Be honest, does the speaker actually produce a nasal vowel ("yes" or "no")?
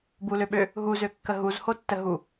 no